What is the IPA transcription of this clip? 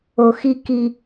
o˨ x i˦ k i˦

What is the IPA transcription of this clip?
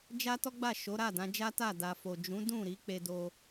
d͡ʒ a˦ t ɔ˦ ɡ͡b a˦˨ ʃ o˨˦ ɾ a˦˨ d ã˨˦ d͡ʒ a˦ t a˦˨ d a˨ f o˨ d͡ʒ ũ˨˦ d ũ˦˨ ɾ i˨˦ k͡p e˧ d o˧

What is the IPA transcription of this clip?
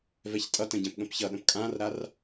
v ɛ ç tʼ ʌ t ə̃ ɟ ɛ̃ p ɠ ə̃ p ç ʌ ɗ ə̃ p kʼ ã r ɾ a r

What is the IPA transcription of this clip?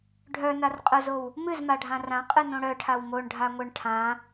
ɖʱ œ n a r qʼ œ z o w | m ɨ z m a ɖʱ ã r ã qʼ ɨ n õ ɽ œ ʈʰ a w m o ɳ ɖʱ a ŋʷ œ ɳ ʈʰ ã

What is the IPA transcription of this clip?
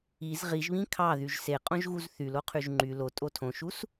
i z ʁ i ʒ β ĩ kʰ ɑ ð y ʒ s e qʼ õ ʒ ɣ u z θ y l o qʰ y ʒ ŋ͡ǃ y l o tʼ o tʰ õ ʃ u s

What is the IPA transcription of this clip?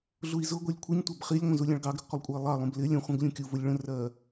ɮ u i̯ z ʊ ɡʷ ɛ lʲ kʷʰ ɪ ɲ tʷ ɜ b χ i lʲ ŋʷ ə̃ z u lʲ ɑ̃ ɭ ɡ ɑ ɡ ɾ ʊ ɡ qʷ ə lˠ kʷʼ ə i̯ lˠ ɑ lˠ ũ b l ɪ lʲ ə̃ χʷ ə̃ ɡ lʲ ũ kʲ u v ʊ lʲ ɭ ə̃ r ɜ

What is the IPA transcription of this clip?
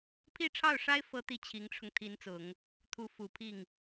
pʰ i˥˧ ʈ͡ʂʰ ɑ˥˩ ʊ̯ ʂ a˥ ɪ̯ f ɤ˥ t̪ i˥˩ t͡ɕʰ i˧˥ ŋ ʈ͡ʂʰ ʊ˧ ŋ t̪ʰ i˧˥ n t͡s ʊ˨˩˦ ŋ | t̪ʰ u˧˥ f u˨˩ pʰ i˥˩ ŋ

